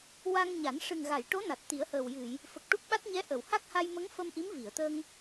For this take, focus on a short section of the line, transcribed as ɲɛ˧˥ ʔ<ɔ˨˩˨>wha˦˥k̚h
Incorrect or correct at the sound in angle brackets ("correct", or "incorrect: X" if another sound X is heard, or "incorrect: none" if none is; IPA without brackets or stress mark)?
incorrect: ə˨˩˨